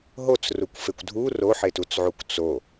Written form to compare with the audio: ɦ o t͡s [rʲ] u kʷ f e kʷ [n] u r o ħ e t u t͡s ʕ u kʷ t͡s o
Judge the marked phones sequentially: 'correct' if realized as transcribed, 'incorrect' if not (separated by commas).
incorrect, incorrect